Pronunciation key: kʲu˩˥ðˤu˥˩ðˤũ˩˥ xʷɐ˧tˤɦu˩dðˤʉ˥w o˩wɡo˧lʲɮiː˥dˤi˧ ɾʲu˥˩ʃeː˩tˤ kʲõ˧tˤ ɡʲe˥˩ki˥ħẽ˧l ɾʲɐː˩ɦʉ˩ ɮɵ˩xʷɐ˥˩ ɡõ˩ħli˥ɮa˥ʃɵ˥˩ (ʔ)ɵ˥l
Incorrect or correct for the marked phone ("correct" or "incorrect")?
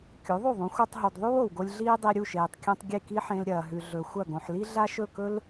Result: incorrect